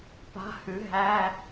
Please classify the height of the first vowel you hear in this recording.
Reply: low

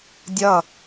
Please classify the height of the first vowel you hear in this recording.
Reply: mid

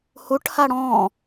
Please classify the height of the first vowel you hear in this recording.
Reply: high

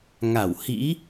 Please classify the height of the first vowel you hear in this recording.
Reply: low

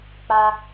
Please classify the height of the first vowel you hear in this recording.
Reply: low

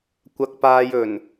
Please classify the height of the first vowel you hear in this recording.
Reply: low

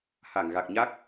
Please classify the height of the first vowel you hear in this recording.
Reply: low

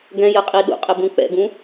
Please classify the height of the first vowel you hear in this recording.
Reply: mid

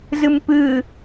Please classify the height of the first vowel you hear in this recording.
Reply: high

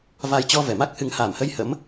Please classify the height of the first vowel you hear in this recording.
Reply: low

